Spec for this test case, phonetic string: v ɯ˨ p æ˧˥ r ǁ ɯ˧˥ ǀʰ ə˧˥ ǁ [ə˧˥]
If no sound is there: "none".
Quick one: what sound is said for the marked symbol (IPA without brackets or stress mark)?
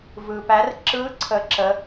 ə˧˥